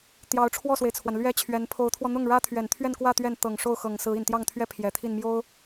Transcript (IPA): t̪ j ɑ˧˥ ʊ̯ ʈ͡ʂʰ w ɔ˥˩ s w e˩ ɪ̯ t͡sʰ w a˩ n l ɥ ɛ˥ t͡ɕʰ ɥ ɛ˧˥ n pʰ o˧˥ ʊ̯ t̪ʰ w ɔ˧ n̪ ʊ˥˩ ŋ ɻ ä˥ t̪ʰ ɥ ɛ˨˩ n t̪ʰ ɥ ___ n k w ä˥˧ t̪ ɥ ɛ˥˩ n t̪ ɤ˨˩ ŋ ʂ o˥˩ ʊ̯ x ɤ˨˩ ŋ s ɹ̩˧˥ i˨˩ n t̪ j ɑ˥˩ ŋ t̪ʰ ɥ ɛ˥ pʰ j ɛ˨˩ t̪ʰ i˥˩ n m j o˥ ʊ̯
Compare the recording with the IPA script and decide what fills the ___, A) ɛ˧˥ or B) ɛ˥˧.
B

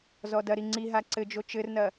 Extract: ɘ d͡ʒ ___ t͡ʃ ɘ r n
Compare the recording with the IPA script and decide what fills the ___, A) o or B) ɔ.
A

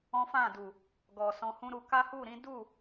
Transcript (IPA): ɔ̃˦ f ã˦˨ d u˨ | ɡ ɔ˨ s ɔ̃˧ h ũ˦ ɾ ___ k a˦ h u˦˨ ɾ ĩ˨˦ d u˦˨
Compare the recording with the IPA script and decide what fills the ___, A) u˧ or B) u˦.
A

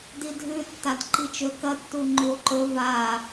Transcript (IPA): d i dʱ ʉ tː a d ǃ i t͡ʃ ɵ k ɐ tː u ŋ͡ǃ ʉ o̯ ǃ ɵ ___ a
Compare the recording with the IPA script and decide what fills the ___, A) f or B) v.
B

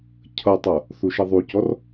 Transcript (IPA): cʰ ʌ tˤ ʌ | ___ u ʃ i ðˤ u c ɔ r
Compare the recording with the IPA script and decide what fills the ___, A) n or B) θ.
B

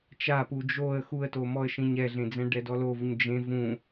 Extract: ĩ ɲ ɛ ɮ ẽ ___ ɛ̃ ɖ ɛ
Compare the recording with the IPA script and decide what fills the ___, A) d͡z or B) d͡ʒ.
A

